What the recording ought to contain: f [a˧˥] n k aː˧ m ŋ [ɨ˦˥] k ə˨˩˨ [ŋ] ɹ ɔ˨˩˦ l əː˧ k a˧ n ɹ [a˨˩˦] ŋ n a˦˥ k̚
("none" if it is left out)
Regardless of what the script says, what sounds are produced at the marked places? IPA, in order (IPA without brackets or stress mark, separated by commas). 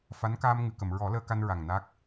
a˧˥, ɨ˨˩˨, m, a˨˩